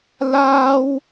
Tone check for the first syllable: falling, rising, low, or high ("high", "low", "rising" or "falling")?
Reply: high